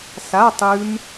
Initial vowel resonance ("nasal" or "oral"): oral